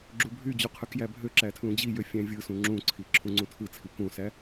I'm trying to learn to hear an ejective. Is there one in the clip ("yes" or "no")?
no